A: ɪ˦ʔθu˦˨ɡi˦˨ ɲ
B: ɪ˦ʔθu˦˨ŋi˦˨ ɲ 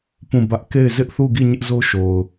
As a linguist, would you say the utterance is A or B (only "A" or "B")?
A